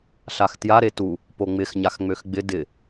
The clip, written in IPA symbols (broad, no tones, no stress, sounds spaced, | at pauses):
ɬ a x t j a ɾ e t u | p o ŋ͡m ɪ x ɲ a x ŋ͡m ø x ɡ͡b ɪ d ɪ